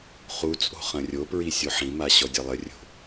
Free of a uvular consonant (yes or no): no